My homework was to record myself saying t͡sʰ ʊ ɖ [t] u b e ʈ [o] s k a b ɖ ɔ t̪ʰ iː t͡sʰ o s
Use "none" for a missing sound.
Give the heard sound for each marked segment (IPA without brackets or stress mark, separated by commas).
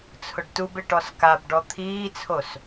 t, ɔ